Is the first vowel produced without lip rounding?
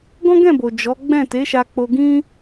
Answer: no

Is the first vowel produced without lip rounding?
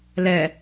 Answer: yes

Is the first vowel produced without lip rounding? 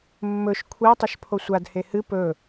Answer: no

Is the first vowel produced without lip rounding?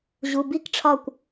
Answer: no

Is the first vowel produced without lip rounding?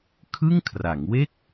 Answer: yes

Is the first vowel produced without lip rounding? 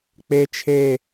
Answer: yes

